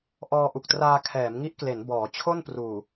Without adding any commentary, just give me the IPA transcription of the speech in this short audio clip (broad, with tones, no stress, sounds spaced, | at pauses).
ʔ ɔː˧ ʔ u˨˩ k̚ t r aː˧ kʰ ɛː˩˦ m ŋ i˦˥ ʔ k l e˩˦ n b ɔː˩˦ t͡ɕʰ o˥˩ n p r uː˨˩